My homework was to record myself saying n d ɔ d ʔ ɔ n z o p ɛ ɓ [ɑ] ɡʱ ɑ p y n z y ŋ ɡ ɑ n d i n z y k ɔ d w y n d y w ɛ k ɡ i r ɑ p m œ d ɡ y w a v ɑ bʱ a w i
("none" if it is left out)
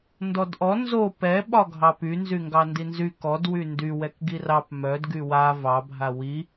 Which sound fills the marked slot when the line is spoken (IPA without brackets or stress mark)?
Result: ɒ